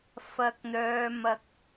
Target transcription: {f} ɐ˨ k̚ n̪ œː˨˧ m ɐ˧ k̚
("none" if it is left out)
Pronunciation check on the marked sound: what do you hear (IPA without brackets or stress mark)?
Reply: f